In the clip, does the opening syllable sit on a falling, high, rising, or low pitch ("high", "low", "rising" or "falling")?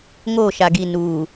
falling